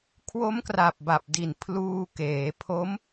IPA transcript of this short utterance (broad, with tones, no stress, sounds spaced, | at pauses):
kʰ w o˦˥ m k r a˨˩ p̚ b a˨˩ p̚ d i˨˩ n pʰ l uː˧ k eː˩˦ pʰ o˦˥ m